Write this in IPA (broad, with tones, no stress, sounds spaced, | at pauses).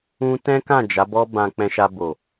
ũ˧ t ɛ̃˦ k ã˦˨ d͡ʒ a˨˦ b ɔ˦ b ã˧ k͡p ɛ̃˧ ʃ a˧ b o˨